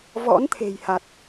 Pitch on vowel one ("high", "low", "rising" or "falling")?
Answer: rising